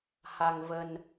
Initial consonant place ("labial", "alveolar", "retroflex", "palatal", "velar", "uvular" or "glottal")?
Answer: glottal